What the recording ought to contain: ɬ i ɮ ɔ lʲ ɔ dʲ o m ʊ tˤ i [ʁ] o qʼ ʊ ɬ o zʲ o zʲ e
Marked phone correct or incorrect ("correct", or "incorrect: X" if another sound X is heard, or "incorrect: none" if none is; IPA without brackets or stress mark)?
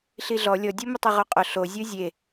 correct